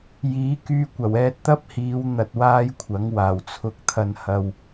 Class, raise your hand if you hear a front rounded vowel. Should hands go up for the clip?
yes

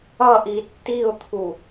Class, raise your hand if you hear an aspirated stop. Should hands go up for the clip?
yes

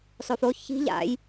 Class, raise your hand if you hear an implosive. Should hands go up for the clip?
no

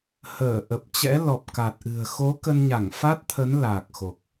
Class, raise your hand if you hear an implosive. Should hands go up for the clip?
no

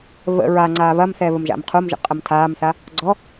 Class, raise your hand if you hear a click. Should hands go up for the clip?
yes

